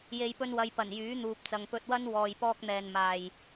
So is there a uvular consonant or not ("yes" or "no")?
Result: no